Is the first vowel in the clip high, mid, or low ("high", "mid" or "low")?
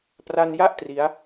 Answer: low